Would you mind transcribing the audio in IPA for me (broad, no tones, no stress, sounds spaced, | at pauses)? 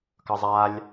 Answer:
k ʌ zˤ a lʲ